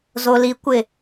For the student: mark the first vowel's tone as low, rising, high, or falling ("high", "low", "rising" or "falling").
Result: low